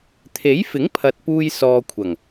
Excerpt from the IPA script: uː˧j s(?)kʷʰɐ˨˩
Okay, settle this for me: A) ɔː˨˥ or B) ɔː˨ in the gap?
B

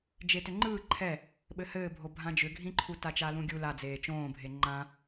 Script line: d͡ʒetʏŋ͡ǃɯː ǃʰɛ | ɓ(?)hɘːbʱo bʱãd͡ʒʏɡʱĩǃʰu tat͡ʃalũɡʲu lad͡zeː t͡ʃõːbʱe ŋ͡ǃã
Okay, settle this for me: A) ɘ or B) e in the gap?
A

